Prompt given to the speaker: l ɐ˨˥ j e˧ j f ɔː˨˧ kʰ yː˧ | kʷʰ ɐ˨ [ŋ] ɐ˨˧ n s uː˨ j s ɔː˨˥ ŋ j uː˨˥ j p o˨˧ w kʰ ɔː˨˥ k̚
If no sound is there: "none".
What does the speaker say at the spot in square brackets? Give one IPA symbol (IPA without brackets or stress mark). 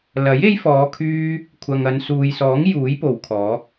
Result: ŋ